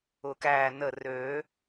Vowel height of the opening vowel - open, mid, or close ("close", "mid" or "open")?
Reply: close